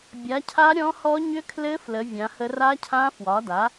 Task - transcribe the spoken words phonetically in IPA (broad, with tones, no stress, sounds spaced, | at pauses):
bʲ a˩˥ cʰ a˧˥ ɾʲ ɔ̃˧˥ h ɔ˧˥ ɲ ʏ˧˥ kʰ l ɘ˧˥ f l ə˩˥ vʲ ã˩˥ h ə˧˥ r a˧˥ cʰ ã˧˥ f w ɒ˩˥ d a˩˥